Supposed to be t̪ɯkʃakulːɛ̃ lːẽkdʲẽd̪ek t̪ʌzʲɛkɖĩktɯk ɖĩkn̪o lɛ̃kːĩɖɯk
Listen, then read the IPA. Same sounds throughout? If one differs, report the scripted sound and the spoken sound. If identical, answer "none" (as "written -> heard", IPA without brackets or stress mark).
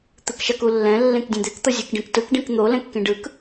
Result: none